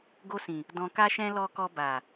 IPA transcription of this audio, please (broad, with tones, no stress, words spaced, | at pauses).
ɡo˧sĩ˨ | dɔ̃˨ka˧ʃɛ̃˧ lɔ˧kɔ˧ ba˨